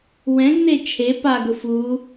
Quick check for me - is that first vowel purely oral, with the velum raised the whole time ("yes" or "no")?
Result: no